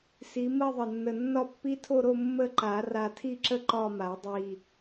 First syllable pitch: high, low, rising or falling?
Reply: rising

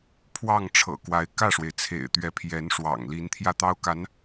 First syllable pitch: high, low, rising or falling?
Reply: falling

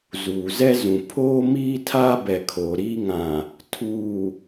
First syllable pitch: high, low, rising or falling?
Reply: low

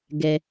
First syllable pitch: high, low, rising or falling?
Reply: high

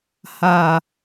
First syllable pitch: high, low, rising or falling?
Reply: low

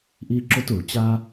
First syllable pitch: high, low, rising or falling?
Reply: high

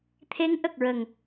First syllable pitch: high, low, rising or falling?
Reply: rising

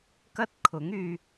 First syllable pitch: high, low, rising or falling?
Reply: high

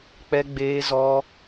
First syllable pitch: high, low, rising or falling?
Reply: high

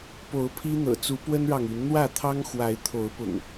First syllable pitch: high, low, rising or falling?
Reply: rising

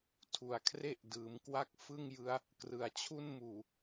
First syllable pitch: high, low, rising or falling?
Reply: low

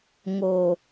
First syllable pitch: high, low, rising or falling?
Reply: low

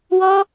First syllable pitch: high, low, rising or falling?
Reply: high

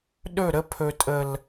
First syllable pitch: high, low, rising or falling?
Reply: falling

